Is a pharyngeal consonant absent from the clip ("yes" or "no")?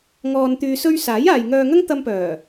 yes